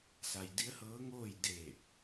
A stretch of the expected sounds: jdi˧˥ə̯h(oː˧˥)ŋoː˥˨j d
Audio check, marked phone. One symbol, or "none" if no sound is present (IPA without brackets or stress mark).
ɤː˧˥